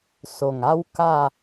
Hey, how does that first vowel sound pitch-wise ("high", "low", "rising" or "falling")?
low